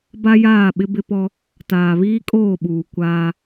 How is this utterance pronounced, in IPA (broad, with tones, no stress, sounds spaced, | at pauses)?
b a˦ j aː˦˨ ɓ ɪ˦ b ɪ˦ p ɔ˦ | t aː˨ β iː˦ kʼ oː˦˨ ɓ uː˨ kʷ aː˦